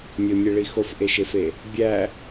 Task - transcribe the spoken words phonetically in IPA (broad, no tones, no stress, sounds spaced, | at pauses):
nʲ o nʲ e ɭ i x o f ʔ e ʃ e f e | bʲ æ